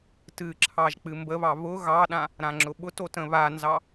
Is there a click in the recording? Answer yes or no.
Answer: yes